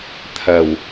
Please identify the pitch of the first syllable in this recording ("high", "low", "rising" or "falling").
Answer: low